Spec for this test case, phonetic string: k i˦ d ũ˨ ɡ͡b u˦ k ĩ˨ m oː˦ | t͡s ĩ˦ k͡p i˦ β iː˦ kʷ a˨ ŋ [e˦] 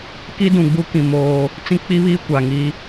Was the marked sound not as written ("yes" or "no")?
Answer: yes